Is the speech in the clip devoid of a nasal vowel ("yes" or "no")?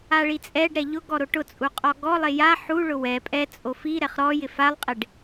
yes